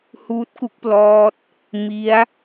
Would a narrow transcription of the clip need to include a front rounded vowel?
no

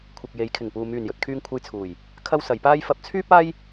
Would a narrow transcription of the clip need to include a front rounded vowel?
yes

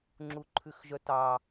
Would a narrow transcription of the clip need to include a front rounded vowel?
yes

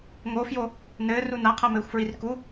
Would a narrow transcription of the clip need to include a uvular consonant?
yes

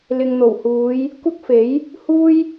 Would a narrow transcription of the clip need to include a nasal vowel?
no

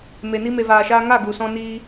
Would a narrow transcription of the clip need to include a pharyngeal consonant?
no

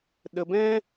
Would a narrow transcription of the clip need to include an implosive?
yes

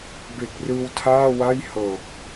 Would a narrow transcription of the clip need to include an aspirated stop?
yes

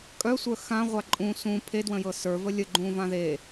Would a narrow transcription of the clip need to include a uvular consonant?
yes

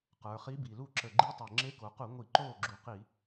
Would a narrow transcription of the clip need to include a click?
yes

